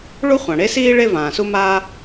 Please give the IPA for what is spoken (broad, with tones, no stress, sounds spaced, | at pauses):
ɭ u˥ χʷ ã˩ ɽ e˥ s iː˥ ɭ e˥ v ãː˩ s u˥ m aː˥